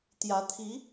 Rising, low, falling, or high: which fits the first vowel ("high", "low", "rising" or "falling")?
rising